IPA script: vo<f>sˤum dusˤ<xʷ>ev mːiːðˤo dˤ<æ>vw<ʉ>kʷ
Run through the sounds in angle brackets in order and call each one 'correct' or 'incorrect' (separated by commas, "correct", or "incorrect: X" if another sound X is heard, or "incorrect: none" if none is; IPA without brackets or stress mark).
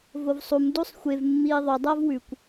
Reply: incorrect: v, correct, correct, correct